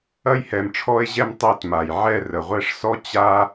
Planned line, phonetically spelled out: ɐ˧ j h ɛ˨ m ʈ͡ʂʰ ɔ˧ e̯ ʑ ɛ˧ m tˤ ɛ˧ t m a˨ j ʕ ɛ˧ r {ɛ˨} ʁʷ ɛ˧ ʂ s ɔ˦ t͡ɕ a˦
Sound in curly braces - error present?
yes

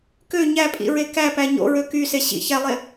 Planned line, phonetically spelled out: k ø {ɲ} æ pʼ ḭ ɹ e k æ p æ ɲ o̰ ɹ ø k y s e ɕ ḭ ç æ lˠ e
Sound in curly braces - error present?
no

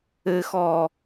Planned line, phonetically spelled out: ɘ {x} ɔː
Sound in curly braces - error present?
no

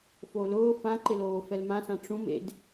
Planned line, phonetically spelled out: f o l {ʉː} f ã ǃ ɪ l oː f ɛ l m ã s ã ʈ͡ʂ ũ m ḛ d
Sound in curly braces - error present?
yes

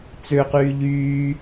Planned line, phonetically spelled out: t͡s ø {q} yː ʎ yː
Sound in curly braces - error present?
no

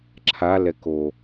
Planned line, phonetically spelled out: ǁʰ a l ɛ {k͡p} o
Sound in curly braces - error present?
yes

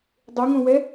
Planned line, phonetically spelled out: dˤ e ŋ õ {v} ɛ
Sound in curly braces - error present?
yes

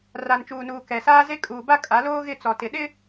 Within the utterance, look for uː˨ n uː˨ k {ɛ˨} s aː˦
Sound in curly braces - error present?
no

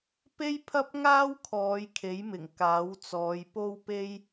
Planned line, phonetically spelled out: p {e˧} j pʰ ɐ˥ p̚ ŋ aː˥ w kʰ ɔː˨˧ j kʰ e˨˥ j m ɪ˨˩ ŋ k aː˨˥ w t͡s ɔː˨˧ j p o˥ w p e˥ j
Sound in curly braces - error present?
yes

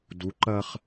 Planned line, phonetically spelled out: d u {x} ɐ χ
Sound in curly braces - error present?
yes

